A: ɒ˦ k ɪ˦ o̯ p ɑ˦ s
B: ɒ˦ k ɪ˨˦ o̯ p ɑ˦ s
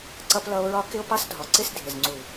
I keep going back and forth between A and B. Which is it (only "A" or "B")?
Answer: A